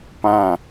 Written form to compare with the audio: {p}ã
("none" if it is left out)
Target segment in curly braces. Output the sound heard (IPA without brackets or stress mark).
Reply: p